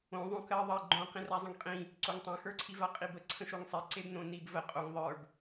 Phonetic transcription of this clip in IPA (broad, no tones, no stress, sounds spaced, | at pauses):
õ ðˤ õ k ɜ ðˤ ɜ ɡ͡ǃ õ q ĩ r a zˤ ə̃ ŋ qʼ ĩ | ǀ o ŋ tˤ ã x ə˞ ǀʰ i v a qʼ i b ə ǀʰ ə̃ ʃ o ŋ sˤ e ǀ e b n õ n i b v ə qʼ o ŋ ðˤ ə˞ b